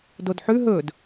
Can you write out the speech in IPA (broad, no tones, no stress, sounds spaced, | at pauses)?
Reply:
d o d ħ ʉ ɦ ɵ d